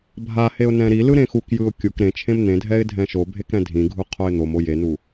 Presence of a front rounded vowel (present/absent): absent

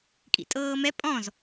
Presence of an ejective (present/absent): present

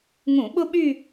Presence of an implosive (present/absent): present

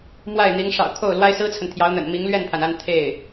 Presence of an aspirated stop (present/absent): present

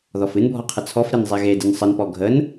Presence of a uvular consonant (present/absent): present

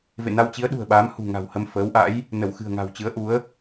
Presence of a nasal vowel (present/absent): absent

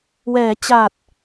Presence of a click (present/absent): absent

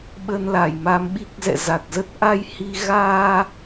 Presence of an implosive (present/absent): present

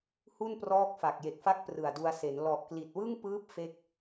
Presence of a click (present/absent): absent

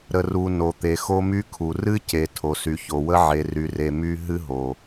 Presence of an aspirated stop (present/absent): present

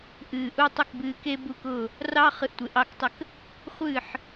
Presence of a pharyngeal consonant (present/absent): present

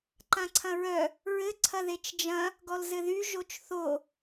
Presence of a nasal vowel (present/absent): present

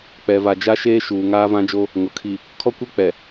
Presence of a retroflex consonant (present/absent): absent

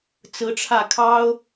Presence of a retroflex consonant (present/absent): present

